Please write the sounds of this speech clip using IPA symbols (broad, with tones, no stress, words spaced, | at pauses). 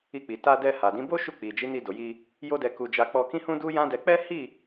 i˧k͡pi˨ ta˧dɛ˧ ha˨dĩ˨˦bo˦ ʃu˦˨k͡pi˨ d͡ʒi˨˦ni˧do˨ ji˧ | jo˦dɛ˧ku˧d͡ʒa˧ k͡pɔ˧kĩ˦hũ˦ du˦jã˦dɛ˧ k͡pɛ˦hi˦˨